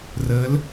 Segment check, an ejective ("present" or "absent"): absent